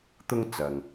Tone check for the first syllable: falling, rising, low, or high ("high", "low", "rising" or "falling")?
high